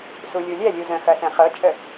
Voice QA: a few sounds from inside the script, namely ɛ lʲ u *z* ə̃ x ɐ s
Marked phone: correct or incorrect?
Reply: correct